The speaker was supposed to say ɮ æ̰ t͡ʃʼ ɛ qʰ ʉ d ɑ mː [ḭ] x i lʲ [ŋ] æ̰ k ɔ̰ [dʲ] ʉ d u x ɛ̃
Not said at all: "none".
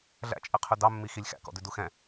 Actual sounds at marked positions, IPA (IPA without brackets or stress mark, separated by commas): i, x, d